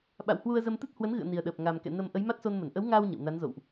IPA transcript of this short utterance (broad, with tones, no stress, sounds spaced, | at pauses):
ɓ a̰˧˨ w h w u˧ ə̯ z ə˧ m t̪ ɨ˦˥ t̚ h w ə˨˦ n ɣ ɨ̰˧˨ ə̯ n i˨˩ ə̯ ɗ əː˨˩ p̚ ŋ a˨˩ m k ɛ̰˧˨ n ə˧ m ʔ ə˨˦ j m a˦˥ t̚ s o˧ n m ə˧˩ n ʔ ə˨˦ w ŋ aː˧ w ɲ ə̰˧˨ w n a˨˦ n z o̰˧˨ w ʔ